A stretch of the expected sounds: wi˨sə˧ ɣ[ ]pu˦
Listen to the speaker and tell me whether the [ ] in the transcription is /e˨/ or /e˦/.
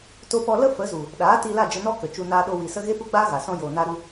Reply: e˦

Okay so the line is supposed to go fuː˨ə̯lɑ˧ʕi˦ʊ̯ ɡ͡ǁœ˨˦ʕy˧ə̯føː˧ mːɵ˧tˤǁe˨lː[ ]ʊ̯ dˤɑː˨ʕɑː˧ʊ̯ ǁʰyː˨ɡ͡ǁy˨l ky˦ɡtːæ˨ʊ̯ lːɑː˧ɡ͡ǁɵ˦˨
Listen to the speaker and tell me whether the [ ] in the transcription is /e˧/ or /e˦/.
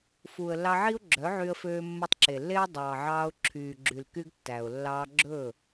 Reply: e˦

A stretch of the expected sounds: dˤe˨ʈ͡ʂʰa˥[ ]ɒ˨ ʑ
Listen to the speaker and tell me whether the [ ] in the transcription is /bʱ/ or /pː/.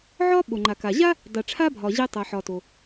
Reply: bʱ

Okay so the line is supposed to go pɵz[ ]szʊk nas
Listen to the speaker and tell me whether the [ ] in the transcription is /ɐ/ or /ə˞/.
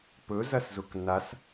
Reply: ɐ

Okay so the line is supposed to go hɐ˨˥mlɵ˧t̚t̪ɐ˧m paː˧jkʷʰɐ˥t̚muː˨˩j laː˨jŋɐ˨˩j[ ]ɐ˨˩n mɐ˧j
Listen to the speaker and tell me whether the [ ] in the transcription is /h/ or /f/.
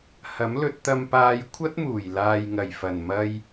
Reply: f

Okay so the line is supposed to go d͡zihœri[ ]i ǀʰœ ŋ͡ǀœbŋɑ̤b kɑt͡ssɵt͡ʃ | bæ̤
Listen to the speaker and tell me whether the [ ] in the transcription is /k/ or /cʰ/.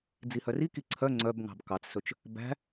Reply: k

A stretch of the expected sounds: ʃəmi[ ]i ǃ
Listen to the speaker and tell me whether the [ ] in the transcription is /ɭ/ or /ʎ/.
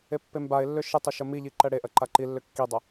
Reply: ʎ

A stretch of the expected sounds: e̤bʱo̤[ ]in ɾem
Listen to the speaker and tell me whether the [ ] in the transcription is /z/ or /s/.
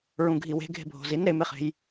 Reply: z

